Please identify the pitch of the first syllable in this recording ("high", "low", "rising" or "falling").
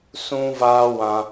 high